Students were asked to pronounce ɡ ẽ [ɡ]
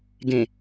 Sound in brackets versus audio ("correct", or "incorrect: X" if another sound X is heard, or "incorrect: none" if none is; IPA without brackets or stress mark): incorrect: none